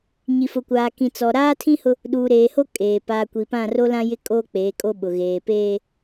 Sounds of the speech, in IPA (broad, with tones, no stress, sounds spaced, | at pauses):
ɲ i˨ f ʊ˨ kʷ aː˨ k ĩ˨ t͡s ɔ˨ ɾ aː˦ tʰ ĩ˦ h ʊ˦ | ɗ uː˨ ɾ eː˨ h o˦ kʼ eː˨ p aː˨ kʷ i˨ p ã˦˨ r o˦ l ã˦ j ɪ˦ kʼ o˦ k͡p eː˨˦ kʼ o˦ ɓ ʊ˨ ɣ eː˨ p eː˦